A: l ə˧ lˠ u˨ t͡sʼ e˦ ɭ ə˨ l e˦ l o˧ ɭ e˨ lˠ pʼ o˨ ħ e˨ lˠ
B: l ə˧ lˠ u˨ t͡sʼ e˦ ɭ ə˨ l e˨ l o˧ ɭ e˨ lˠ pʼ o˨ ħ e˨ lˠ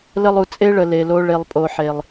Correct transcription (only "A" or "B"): B